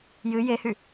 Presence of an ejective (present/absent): absent